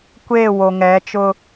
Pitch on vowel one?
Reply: falling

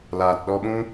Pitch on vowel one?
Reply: low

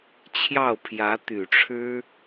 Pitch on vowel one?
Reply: falling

